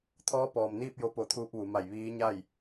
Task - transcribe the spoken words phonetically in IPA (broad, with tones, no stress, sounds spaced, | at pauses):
t̪ʰ ɔː˧˥ p ɔː˩ m n iː˥˨ p̚ j o˧ p o˧˩ t̪ʰ uː˧ p̚ ʋ u˩˧ m a˧˩ j ʋ iː˧˥ ɲ a˥˨ j